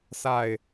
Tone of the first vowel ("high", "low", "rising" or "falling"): falling